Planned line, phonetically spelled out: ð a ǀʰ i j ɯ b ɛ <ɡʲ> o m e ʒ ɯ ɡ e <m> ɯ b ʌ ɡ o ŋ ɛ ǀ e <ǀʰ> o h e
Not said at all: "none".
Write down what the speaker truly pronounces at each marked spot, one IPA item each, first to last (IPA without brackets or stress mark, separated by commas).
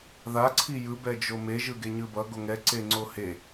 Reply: d͡ʒ, ɲ, ŋ͡ǀ